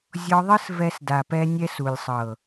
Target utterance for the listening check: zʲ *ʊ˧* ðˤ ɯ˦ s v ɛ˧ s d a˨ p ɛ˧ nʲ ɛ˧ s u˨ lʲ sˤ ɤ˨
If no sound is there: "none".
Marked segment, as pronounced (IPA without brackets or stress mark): ɔ˧